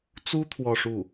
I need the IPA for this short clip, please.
t͡su˥ t̪ʰwɔ˥˧ʂu˥˩

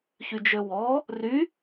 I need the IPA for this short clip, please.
çyd͡ʒøwɔ | ry

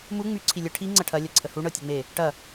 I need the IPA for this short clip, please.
mu ŋ͡my ǀʰilʲə ʈʰi ŋ͡ǀɐʈʰɐ lʲɐǀʰəhu ɳɤtʲeŋ͡me | ʈɐ

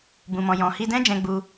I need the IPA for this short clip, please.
bũ˨mɔ̃˨ jɔ̃˨hi˧dɛ̃˦ d͡ʒɛ̃˦ɡ͡bu˦

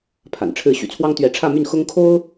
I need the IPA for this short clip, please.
pʰa̰˨˩n ʈ͡ʂʰɻ̩˥˩ ɕy̰˨˩t͡sʰwɑ˥ŋ t̪ɥɛ˧˥ʈ͡ʂʰä˥˧my˥˩n xʊ˥ŋkʰo˥ʊ̯

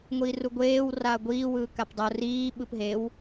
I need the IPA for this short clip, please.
ŋʷiːruɡʷeːw raːɡʷiː wɯːkapdˤo riː ɓɯpɦew

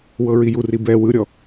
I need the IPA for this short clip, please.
wɤɹijuri bɛ wɯɾʲɔ

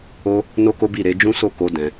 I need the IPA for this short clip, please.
o˦ | no˦ko˦bi˦˨ ɾe˨˦d͡ʒũ˦so˦˨ko˧ dɛ̃˧

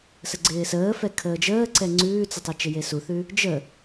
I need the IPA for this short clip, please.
səɡ͡ǀɪːsəː fɛkʰəːd͡ʒəːǀɛ ŋ͡ǀʉːt͡sɪtˤe t͡ʃɪjesuθʉ | d͡ʒə

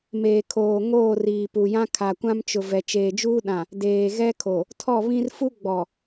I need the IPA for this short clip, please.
meː˨ kʰoː˨ ŋoː˦˨riː˨pu˨jã˦ kʰa˨kʷã˦mt͡ʃʊ˨ vɛ˨t͡ʃeː˨d͡ʒuː˦ ɗã˨ | deː˨ɣɛ˦kʰo˨ | tʰɔ˦˨βĩ˦r fu˦ɡ͡bɔ˨

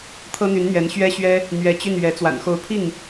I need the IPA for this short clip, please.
t̪ʰɤ˥n̪y˧˥n n̪ɥɛ˧˥nɕɥɛ˥ɕɥɛ˥ | n̪ɥɛ˧˥t͡ɕy˥˩n ɥɛ˧˥ t͡swa̰˨˩nxo˧˥ʊ̯pʰi˥˩ŋ

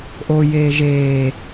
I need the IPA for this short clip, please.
ʔojeː ʒeː

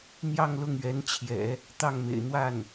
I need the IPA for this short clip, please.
n̪jɑ˥˧ŋlʊ˥˩ŋɥɛ˧˥nt͡ɕʰjɛ̰˨˩˦ | t̪ɑ˥˩ŋmḛ˨˩ɪ̯ n̪wa˥˩n

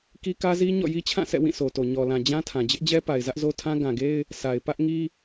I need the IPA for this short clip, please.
ki˦kä˦zi˦ ɲɔ̰˦˨ji˦t͡ɕʰã˦˨sɛ̰˦˨ wĩ˦˨ sʰo˨to˨ ɲɔ˨lã˨ d͡ʑã˦tʰã˨ d͡ʑɪ˦ʔd͡ʑɛ˦pa˨ɪ̯ zä˦ʔzo˦tʰã˦ ɡã˨ɡe˦ɪ̯ | sʰa˨ɪ̯ pä˦ʔŋi˦

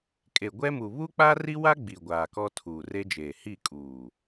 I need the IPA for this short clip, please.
kʼe˨ɡʷɛ˦mu˨ βu˦k͡pa˦ri˦wa˦ ɡ͡bi˨ ɡʷaː˨kɔ˦ tʰuː˨re˦d͡ʒeː˨ hi˦˨kʼuː˨

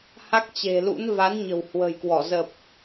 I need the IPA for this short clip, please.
ha˦˥k̚t͡ɕe̤˨˩lṵ˧˥n va˨˦nɲə̤˨˩w hwə̤˨˩jkwɔ˧˩ zə˨˩p̚

